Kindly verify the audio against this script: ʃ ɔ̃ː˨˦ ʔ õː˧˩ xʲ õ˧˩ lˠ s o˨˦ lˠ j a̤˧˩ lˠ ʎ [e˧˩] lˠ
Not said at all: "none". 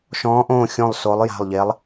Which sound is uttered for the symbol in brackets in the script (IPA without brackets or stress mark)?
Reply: e˨˦